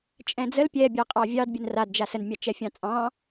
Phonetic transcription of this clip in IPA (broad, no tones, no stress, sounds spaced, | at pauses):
t͡ʃʼ ɛ̃ d͡z ə l pʲ ɛ bʲ ɑ qʼ ɑ vʲ ɑ d bʲ ə n r a d d͡ʒ a s ə n mʲ ɑ t͡ʃ ɛ fʲ ɑ̃ t͡sʼ ɑ̃